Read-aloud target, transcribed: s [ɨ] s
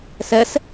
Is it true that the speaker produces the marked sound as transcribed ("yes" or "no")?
no